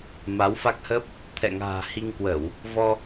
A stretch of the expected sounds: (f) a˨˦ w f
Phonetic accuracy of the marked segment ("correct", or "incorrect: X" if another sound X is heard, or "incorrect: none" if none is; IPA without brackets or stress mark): incorrect: m